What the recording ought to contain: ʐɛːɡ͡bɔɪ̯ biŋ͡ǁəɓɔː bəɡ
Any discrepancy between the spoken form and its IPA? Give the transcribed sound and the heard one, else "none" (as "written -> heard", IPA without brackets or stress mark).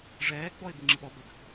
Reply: ɔː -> ɔ